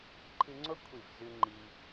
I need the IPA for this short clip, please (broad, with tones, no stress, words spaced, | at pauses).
ǃʰɨ˧ŋ͡ǀo˦ kʷʰi˦˨vzʉ˦ ŋ͡ǃi˧